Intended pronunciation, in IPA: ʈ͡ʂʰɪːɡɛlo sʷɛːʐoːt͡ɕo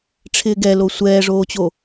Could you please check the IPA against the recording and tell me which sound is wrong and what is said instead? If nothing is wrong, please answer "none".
none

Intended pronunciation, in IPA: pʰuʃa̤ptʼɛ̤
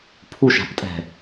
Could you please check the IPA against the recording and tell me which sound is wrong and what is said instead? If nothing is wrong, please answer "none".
none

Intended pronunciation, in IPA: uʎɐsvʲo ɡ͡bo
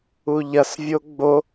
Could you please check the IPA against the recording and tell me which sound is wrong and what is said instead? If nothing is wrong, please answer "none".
none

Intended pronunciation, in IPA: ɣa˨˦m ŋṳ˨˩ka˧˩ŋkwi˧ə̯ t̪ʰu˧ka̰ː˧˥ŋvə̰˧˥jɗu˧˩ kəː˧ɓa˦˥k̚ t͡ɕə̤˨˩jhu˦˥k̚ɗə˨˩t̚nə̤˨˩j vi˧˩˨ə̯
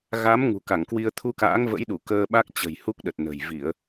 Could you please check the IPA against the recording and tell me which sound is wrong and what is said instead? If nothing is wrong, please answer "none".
none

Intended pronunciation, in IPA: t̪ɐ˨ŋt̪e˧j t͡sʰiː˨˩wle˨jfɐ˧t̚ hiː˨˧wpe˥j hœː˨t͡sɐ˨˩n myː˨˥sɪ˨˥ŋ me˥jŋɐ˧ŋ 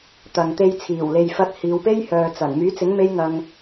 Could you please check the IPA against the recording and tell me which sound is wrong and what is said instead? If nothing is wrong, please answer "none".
s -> t͡s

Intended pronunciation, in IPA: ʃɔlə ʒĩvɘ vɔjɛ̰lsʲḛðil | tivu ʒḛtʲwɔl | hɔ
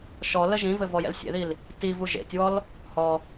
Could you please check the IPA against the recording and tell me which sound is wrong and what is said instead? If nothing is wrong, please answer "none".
none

